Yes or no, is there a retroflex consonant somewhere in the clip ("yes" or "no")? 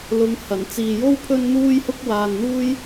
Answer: no